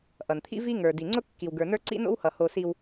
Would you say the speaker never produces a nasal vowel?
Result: yes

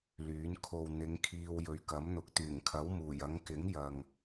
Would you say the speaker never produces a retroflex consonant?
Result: yes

